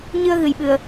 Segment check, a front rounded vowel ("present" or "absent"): absent